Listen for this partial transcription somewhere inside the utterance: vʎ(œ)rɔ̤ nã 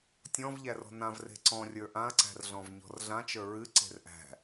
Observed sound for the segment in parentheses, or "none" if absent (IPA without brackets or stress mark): æ